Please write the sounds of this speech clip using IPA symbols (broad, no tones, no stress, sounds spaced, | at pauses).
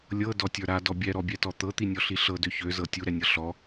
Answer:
lʲ ɤ d ɔ tʲ ə˞ ɾ a d ɔ bʲ ɛ ɾ ɔ bʲ ɛ t ɔ t̪ ɤ t̪ i nʲ ɔ ɬ i ɬ ɤ d ø ç ø z ɤ tʲ u ɾ ɛ nʲ ɤ ɬ ɔ